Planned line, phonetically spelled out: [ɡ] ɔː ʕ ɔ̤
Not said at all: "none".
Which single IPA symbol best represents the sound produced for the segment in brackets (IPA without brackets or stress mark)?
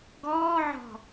ɡ